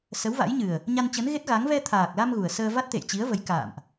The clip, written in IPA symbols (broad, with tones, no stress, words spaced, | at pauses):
sə˨˦wva̰˧˥jɲɨ˨˩ə̯ | ɲa˧nt͡ɕə˨˦nɣe˦˥t̚ɣa˨˦ŋ vɛ˧t̪ʰaː˨˩k̚la˧m ɣu˨˩ə̯ səː˧va˦˥t̚t̪ḛ˧˨jt͡ɕi˨˦ə̯ və˨˦j ka̰ː˧˨mʔ